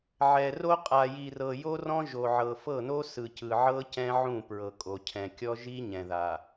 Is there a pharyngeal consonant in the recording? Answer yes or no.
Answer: yes